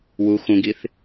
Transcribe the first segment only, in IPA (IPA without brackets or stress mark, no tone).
w